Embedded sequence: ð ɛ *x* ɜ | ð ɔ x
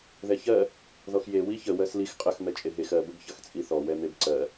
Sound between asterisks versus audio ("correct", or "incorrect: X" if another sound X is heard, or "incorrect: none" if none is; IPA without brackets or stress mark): incorrect: ç